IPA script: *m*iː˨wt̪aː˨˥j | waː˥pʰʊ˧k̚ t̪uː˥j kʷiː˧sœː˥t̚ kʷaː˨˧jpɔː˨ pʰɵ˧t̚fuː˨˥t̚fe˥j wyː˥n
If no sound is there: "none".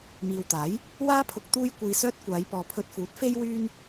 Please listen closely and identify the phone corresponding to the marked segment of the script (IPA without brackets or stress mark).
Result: m